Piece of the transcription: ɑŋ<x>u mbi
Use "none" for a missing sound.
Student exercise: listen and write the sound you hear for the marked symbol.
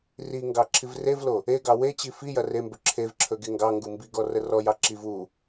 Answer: ɡ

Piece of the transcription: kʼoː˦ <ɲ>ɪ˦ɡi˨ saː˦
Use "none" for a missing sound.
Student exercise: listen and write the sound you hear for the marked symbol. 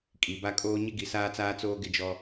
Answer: ɲ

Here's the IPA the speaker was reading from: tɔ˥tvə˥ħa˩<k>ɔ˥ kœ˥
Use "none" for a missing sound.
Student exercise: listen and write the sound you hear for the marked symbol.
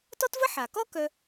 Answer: k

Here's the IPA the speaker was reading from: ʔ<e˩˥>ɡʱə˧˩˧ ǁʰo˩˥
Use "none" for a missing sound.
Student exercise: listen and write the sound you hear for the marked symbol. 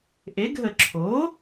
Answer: e˩˥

